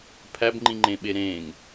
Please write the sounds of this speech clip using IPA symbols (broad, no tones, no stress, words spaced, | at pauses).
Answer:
pʰæbŋ͡ǃĩŋ͡ǃẽɓe ɾẽŋ